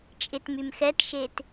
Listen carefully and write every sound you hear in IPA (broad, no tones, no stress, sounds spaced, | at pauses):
t͡ʃʼ ɪ t m y m x ɛ t ʃ e t